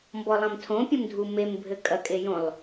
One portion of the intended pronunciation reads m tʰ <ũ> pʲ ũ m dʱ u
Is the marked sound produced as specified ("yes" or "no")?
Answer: no